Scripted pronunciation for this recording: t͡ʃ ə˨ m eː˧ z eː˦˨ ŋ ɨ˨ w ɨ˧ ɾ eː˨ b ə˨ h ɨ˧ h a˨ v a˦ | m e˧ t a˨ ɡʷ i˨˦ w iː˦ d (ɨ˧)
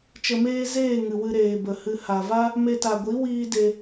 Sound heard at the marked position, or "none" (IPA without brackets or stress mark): e˧